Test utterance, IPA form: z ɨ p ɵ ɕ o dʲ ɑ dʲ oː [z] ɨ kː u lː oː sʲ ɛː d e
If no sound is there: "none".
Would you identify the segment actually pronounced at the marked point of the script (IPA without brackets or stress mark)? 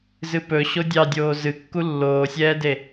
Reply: z